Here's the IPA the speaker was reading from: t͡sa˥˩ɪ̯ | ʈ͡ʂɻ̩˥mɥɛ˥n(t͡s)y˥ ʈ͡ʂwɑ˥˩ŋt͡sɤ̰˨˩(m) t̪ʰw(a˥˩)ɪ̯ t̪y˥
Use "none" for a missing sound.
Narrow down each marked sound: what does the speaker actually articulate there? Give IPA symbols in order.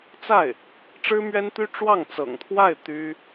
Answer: t̪, ŋ, a˥˩

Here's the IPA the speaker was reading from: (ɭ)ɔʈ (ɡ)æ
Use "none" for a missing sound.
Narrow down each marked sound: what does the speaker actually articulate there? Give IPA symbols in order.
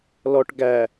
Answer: l, ɡ

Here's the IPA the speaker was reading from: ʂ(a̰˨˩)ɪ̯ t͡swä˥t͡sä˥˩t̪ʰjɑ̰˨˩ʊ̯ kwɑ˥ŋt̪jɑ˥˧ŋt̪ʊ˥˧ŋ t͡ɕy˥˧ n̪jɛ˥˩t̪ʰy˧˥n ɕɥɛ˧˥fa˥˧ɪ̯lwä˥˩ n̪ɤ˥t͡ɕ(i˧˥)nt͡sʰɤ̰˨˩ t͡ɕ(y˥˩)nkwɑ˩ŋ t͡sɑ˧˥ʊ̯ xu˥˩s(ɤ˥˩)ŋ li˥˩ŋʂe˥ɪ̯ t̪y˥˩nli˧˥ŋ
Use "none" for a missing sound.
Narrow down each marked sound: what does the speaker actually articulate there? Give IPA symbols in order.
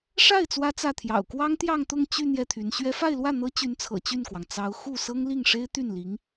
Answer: a˥˩, y˧˥, y˥˩, ɤ˥

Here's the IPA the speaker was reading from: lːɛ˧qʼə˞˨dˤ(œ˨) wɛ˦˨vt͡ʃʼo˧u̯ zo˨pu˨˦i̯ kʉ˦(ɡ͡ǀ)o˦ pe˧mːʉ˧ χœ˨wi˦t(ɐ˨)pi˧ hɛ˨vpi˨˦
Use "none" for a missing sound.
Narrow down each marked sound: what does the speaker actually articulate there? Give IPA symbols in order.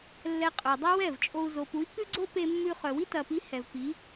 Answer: œ˦, ɡ͡ǀ, ɐ˨

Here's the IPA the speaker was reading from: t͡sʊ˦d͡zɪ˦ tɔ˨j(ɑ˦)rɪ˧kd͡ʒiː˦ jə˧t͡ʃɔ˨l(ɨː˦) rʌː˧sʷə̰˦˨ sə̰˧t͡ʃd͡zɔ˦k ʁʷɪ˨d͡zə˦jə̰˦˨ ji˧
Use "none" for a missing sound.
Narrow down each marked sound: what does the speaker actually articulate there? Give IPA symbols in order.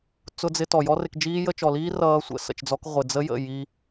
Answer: ɔ˦, iː˦

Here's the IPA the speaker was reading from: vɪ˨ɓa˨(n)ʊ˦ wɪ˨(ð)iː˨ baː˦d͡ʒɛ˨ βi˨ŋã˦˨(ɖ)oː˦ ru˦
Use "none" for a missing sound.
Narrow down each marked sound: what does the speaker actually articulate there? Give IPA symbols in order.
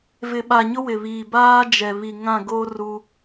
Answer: ɲ, β, ɡ

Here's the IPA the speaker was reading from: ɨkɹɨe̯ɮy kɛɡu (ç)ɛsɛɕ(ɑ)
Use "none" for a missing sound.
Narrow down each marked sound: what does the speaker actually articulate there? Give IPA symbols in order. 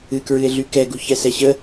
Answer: ç, ə

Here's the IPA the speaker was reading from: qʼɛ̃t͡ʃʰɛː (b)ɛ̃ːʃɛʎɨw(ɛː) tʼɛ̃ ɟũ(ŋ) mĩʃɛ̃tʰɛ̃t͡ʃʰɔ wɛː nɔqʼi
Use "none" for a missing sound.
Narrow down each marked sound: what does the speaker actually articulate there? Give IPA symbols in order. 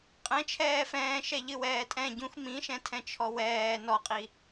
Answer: f, ɛː, x

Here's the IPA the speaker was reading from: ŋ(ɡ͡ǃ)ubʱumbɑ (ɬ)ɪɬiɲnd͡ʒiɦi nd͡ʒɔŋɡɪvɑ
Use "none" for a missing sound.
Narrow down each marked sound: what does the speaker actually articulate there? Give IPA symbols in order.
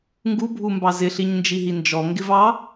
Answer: ɡ, z

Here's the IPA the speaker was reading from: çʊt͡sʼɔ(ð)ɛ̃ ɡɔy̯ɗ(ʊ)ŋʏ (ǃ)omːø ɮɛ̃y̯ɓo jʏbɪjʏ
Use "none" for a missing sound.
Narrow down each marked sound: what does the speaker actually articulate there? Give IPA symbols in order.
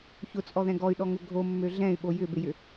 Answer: ð, ɔ, ɡʱ

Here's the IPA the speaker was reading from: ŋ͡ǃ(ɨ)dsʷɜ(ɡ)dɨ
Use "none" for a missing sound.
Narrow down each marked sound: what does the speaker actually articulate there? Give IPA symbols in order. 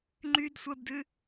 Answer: y, b

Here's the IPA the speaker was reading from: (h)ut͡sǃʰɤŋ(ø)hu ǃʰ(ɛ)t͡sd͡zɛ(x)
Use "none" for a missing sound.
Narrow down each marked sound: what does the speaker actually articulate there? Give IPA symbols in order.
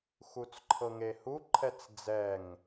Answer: x, e, ɛ, ŋ

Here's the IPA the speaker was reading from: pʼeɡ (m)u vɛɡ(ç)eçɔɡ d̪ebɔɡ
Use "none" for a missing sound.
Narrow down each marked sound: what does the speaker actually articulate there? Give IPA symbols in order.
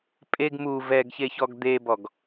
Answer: m, ç

